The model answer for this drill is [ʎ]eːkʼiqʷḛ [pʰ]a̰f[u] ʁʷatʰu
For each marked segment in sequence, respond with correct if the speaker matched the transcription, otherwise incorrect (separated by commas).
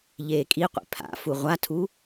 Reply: correct, correct, correct